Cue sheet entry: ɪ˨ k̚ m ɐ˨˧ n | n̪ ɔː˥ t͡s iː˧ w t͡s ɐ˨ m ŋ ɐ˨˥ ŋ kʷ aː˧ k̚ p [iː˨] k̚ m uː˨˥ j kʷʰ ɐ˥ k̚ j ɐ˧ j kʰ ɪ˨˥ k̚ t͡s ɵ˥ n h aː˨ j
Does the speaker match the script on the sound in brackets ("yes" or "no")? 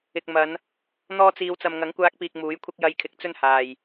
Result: yes